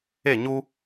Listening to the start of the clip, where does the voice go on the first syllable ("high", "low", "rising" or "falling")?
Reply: falling